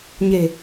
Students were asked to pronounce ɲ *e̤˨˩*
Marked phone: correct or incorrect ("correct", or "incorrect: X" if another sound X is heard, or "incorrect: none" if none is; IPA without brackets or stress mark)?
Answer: correct